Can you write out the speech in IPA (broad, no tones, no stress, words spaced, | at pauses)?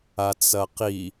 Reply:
at͡sɐqi